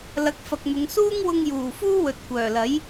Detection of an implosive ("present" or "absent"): absent